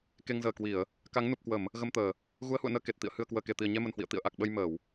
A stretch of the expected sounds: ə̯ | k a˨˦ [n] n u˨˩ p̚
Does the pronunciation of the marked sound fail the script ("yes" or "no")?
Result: yes